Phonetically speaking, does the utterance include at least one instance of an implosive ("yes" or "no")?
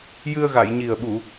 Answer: yes